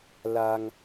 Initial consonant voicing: voiced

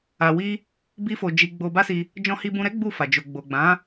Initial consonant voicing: voiced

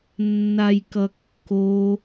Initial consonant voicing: voiced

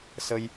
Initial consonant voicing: voiceless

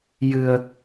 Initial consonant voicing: voiced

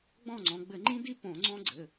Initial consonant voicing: voiced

